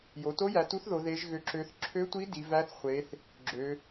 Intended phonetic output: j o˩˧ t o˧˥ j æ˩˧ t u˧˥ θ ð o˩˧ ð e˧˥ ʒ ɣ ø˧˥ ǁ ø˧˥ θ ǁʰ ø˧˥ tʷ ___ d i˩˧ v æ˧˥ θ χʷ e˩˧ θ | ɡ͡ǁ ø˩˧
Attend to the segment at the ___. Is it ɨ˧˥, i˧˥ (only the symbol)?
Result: i˧˥